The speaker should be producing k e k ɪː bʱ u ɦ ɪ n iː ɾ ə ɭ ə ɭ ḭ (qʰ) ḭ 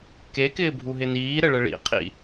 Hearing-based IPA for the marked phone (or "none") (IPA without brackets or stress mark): qʰ